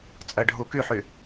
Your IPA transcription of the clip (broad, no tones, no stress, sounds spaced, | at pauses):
t͡sʼ ɜ ɖʱ u k y ħ y